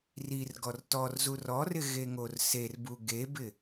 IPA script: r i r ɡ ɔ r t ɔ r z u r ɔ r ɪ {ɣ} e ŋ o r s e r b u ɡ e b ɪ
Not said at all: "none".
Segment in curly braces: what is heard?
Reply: ɣ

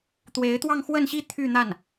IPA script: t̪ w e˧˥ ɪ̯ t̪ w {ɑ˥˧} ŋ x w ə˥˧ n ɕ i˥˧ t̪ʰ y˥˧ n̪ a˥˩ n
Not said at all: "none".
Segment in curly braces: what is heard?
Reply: ɑ˥˧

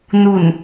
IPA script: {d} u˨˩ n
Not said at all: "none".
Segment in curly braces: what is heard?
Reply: n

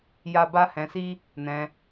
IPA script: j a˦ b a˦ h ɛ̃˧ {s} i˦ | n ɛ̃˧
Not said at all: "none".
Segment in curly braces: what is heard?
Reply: s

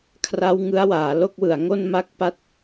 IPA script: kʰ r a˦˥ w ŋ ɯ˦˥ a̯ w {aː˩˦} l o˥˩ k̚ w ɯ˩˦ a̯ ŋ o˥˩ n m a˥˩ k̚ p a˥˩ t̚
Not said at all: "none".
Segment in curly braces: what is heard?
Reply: aː˩˦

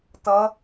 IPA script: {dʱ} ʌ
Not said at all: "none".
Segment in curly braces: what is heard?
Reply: t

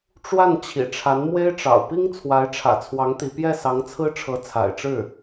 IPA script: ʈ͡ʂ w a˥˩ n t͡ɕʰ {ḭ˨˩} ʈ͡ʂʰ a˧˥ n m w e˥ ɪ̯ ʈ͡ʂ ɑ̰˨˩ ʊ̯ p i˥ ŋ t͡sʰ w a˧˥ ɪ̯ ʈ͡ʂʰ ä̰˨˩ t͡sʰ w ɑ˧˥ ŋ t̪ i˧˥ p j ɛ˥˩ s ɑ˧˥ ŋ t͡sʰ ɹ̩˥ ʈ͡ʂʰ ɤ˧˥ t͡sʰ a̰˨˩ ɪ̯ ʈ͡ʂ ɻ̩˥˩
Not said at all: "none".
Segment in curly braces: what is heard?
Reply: ḭ˨˩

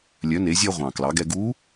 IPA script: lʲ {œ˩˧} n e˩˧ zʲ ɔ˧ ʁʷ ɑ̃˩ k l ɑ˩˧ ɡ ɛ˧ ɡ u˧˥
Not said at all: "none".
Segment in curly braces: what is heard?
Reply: œ˩˧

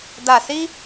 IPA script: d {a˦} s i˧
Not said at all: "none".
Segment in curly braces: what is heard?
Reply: a˨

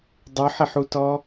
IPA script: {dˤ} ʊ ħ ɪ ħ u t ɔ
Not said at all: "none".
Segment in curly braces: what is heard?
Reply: dˤ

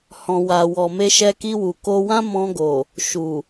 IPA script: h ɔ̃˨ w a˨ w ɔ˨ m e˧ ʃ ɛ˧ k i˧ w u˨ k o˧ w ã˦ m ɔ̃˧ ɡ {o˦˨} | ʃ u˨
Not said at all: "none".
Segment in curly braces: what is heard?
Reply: o˨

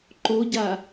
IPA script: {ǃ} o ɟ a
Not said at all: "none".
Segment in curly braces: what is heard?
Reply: ǃ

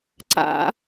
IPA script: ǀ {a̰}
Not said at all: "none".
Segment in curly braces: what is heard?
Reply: a̰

